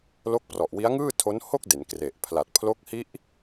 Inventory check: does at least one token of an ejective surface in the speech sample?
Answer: no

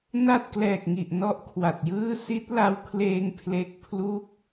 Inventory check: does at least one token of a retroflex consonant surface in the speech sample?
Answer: no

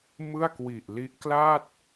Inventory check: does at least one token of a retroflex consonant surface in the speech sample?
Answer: no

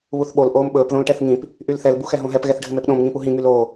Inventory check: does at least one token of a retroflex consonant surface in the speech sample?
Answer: yes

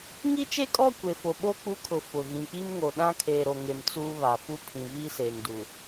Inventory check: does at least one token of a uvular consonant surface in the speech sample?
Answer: no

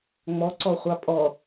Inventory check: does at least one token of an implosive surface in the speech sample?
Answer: no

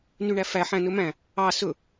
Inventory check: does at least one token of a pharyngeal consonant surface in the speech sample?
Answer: yes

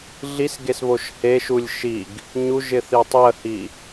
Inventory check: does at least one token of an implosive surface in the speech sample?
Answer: no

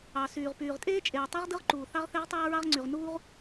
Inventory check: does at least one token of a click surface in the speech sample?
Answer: yes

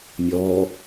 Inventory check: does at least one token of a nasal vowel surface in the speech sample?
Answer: no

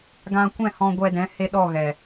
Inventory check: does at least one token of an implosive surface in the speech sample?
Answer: yes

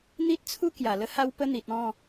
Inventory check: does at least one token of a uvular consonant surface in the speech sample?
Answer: no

